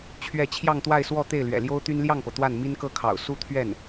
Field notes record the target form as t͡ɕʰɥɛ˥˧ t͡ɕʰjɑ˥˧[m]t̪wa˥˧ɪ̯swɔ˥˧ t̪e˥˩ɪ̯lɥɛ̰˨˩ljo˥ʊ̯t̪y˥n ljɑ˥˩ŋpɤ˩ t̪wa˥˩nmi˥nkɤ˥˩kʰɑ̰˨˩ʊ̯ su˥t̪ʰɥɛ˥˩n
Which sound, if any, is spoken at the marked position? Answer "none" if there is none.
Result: ŋ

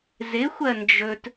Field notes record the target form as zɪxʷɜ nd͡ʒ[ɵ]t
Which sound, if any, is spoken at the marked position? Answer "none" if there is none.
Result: ɵ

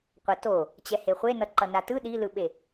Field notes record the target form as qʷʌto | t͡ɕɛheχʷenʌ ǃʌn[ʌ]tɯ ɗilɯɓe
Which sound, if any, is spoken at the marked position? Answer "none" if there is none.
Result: a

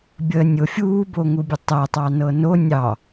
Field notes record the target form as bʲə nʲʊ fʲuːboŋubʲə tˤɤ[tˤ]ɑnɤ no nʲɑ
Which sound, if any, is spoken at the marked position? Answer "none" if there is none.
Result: tˤ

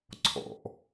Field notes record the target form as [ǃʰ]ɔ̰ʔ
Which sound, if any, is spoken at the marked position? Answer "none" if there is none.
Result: ǀʰ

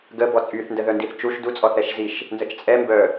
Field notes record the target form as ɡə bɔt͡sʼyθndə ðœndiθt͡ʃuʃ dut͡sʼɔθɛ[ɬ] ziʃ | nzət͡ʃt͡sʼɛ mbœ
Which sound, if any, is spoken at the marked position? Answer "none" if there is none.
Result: ʃ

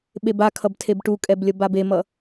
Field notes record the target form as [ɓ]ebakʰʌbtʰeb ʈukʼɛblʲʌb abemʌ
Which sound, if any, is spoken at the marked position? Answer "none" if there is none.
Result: ɓ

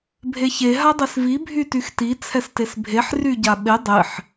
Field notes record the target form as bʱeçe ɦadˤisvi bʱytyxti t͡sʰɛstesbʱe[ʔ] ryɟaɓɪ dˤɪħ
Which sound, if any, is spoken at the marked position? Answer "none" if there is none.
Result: ħ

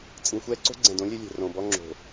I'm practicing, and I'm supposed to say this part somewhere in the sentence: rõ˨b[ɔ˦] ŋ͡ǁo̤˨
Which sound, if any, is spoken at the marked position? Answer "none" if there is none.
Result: ɔ˦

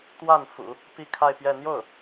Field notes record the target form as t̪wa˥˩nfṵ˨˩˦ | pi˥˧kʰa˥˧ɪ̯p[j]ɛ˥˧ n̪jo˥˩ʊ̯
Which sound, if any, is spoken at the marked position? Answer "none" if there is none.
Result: j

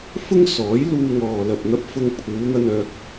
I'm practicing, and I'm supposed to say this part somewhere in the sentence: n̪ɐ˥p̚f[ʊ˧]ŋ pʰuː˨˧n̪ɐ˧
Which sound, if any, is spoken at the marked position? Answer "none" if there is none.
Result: ʊ˥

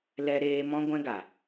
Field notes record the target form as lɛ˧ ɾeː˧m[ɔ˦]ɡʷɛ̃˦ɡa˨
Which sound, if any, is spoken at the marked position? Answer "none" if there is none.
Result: ɔ̃˦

